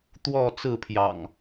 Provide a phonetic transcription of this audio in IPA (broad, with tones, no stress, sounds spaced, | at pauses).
t̪ w ɔ˥˨ t͡s ɹ̩˥˨ pʰ j ɑ̰˨˩ ŋ